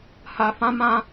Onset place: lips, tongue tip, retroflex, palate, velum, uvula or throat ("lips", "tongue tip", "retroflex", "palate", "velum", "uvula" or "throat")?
throat